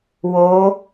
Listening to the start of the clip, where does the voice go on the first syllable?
rising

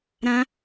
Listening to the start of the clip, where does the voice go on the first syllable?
high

